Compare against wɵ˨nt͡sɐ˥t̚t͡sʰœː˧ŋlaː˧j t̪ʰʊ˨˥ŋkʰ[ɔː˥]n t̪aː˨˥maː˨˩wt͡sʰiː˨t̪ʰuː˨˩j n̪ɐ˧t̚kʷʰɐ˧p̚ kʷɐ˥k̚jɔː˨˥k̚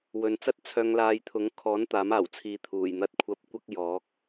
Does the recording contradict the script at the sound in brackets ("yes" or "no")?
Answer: yes